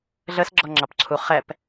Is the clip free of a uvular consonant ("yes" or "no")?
no